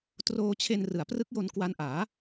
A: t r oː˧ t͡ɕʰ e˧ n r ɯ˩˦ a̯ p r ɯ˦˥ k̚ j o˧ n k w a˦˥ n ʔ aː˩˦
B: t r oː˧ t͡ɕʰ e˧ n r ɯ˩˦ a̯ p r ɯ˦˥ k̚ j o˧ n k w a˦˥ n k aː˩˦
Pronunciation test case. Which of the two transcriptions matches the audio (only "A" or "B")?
A